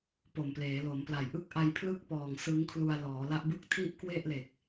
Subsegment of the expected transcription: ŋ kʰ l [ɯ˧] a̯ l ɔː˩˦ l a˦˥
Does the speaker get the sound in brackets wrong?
yes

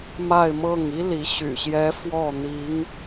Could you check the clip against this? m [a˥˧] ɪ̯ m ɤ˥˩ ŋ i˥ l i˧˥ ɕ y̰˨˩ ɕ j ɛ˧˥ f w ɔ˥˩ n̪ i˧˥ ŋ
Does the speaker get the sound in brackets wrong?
no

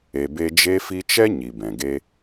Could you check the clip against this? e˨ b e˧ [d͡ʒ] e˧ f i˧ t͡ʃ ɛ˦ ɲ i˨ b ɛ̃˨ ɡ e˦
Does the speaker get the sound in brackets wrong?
no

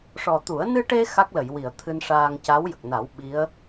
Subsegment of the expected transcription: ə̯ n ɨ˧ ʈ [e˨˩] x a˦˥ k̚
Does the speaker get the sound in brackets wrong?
yes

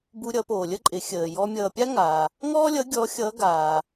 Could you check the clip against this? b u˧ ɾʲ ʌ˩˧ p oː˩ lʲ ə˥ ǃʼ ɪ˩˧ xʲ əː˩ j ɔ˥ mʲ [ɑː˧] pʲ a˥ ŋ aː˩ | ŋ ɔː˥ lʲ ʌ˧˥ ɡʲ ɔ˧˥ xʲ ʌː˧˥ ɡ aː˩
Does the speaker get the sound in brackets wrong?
yes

